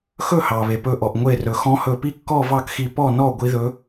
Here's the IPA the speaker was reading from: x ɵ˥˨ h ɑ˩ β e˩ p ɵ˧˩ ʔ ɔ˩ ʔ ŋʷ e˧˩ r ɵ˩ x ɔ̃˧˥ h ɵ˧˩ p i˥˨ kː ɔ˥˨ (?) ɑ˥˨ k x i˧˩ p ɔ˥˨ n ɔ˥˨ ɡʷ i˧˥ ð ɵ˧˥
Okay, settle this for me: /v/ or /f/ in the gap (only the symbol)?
v